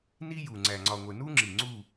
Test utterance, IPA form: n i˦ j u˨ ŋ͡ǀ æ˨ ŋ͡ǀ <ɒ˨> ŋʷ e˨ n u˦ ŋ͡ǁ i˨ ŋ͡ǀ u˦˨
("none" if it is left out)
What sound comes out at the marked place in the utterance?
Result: ɒ˨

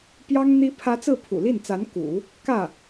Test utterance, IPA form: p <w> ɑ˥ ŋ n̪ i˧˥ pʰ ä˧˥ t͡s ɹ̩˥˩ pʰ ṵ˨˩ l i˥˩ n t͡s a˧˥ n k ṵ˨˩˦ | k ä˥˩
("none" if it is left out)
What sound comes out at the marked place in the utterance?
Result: j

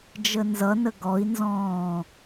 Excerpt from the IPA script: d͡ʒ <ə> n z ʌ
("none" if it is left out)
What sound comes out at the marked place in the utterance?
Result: ə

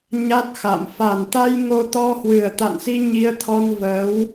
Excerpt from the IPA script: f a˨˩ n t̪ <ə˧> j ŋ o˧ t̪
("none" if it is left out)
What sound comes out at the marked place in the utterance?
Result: a˧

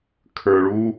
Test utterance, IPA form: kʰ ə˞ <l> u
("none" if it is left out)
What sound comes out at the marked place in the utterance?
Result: ɭ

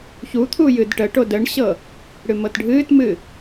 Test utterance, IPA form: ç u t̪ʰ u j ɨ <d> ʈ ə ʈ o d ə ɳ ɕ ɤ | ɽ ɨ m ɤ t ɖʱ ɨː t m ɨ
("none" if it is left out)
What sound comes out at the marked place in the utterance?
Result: d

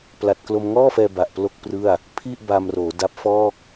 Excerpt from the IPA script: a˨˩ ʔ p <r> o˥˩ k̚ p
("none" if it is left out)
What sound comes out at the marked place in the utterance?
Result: l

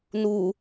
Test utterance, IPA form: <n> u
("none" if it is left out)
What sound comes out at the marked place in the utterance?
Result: n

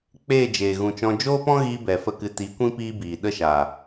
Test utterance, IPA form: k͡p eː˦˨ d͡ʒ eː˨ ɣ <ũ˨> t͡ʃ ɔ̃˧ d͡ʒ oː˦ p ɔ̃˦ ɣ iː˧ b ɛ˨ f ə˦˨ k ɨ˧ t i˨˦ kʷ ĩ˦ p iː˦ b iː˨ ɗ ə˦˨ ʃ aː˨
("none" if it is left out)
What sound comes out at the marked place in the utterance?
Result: ũ˨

